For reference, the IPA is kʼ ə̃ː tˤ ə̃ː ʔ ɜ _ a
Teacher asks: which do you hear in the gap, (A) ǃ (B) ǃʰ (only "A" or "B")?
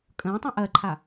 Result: B